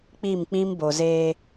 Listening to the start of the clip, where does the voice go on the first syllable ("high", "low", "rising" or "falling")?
falling